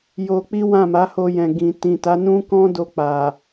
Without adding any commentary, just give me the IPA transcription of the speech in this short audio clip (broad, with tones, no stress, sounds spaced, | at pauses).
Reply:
j o˧ k͡p i˦ w ã˦˨ m a˨˦ h o˧ j ɛ̃˨ ɡ ĩ˨ t ĩ˨ t a˨˦ n ũ˦ k ɔ̃˦ d o˧ k͡p a˨